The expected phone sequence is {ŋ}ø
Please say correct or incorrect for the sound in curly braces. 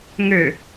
correct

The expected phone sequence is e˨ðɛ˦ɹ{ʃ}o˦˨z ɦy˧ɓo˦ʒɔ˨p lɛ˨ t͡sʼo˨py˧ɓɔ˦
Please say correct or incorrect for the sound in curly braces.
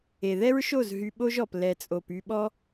correct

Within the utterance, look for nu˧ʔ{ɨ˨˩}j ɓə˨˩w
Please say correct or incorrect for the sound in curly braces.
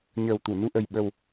incorrect: ə˨˩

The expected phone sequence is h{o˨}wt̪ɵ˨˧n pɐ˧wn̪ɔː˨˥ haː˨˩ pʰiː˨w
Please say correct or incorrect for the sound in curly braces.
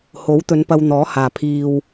incorrect: o˨˥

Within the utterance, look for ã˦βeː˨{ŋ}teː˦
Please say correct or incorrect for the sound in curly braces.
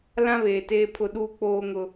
incorrect: none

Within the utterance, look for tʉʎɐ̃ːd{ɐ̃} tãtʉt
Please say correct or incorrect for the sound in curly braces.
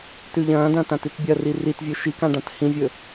correct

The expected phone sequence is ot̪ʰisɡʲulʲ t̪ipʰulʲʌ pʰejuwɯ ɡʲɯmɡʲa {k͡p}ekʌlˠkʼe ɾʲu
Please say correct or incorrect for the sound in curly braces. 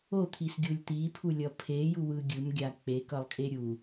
correct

